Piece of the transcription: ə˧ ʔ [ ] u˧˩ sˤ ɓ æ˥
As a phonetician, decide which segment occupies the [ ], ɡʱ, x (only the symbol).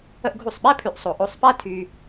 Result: ɡʱ